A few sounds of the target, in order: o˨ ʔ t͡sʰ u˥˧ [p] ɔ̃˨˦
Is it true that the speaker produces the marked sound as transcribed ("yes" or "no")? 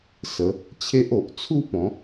yes